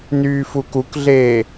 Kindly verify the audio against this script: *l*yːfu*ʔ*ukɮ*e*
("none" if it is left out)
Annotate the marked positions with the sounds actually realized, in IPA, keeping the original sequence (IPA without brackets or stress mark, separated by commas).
n, k, eː